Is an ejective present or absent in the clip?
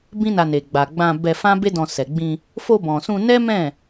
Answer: absent